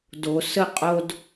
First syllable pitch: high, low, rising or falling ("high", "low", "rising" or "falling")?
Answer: low